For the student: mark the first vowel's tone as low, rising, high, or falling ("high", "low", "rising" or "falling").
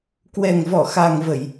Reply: low